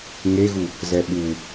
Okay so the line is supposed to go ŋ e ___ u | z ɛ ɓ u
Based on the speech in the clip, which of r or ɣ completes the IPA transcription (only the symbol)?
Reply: ɣ